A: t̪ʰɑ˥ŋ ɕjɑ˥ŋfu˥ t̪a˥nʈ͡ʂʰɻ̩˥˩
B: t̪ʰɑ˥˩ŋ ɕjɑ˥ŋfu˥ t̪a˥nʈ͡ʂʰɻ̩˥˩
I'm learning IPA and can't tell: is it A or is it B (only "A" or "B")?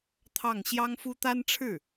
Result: B